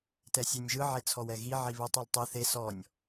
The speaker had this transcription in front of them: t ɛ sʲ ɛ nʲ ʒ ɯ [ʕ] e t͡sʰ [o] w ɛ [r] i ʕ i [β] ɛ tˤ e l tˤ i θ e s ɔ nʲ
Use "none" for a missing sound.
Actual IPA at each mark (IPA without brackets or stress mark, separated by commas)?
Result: ʕ, ɔ, ɣ, β